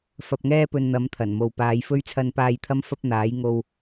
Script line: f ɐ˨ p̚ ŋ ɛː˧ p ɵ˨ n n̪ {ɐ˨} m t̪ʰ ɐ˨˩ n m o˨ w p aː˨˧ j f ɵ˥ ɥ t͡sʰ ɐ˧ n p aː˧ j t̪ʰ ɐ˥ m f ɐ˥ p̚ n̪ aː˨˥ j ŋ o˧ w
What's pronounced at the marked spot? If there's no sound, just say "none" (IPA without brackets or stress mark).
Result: ɐ˨˧